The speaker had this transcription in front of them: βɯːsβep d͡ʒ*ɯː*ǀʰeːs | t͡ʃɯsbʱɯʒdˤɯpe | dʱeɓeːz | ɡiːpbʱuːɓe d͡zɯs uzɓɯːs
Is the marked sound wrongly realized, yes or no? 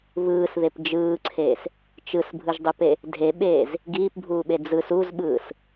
no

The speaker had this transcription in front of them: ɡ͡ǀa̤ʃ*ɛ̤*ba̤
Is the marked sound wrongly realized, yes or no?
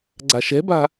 no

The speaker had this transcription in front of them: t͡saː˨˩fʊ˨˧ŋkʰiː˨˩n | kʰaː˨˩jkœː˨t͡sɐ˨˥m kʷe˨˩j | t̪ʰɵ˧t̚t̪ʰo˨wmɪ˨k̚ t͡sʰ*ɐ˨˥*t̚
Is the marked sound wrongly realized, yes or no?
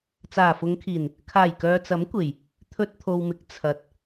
yes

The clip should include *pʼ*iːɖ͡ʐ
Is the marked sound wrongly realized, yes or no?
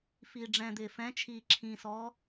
yes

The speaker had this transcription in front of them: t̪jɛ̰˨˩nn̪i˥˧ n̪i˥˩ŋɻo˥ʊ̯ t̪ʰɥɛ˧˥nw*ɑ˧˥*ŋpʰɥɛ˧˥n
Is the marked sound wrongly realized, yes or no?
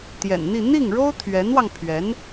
yes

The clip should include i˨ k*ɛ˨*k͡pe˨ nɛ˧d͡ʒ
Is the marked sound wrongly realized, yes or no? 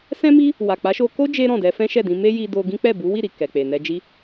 no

